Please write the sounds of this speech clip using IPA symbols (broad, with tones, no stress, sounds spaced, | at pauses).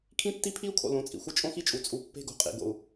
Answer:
kʰ ĩ˦ tː i˦ pʰ i˦ u̯ kʰ o̰˨ l õ˨˦ t͡sʼ ḭ˨ xʷ ɪ˦ t͡ʃʼ õ˦ x i˦ t͡ʃʼ u˨ t͡sʼ u˨ pː e̤˦ ɡ o̤˨ qʼ ḭ˨ ɡ o̰˨ u̯